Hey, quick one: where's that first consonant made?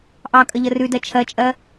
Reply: throat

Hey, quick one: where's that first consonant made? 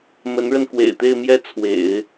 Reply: lips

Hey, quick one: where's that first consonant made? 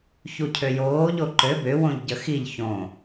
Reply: palate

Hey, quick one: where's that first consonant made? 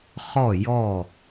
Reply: uvula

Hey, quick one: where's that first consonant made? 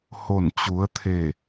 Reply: throat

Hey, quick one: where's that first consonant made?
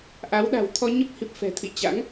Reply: throat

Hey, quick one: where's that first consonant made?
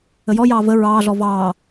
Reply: palate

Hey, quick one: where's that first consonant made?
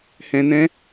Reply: throat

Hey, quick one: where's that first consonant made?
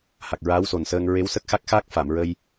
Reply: throat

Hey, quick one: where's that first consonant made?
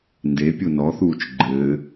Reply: tongue tip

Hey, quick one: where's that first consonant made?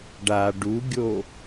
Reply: retroflex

